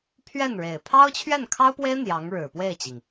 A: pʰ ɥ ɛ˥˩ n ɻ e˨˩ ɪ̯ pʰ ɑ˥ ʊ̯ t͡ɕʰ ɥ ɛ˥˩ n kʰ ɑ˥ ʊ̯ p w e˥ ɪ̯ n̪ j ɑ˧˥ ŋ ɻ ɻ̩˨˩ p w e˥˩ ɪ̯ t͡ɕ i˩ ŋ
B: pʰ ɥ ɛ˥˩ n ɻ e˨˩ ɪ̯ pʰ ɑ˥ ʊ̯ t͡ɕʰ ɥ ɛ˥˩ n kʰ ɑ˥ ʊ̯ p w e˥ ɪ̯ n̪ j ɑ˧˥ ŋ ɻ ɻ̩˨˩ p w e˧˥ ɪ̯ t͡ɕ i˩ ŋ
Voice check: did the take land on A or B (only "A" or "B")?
A